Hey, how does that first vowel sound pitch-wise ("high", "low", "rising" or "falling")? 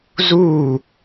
falling